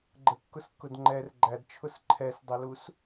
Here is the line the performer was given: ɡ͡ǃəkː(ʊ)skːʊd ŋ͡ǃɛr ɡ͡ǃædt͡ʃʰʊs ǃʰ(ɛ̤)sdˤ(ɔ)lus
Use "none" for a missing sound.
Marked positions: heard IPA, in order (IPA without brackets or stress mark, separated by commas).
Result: ʊ, ɛ, ə